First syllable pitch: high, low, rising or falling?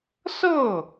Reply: falling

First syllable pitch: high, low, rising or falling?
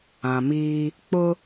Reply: low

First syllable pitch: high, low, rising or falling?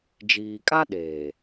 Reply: low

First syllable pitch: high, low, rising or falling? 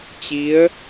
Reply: rising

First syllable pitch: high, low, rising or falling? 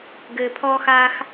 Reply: low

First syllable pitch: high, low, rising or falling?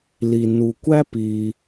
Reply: low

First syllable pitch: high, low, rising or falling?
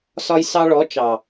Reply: high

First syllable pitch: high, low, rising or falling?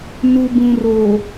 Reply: low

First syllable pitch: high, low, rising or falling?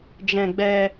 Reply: high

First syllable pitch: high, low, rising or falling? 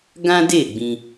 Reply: high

